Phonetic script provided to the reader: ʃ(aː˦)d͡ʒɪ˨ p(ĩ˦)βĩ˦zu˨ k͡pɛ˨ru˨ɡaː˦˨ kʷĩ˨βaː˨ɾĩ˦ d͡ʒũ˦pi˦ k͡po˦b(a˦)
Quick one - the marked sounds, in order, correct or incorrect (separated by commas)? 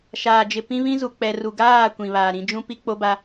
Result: incorrect, correct, correct